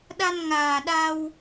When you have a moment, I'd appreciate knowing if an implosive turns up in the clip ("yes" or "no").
yes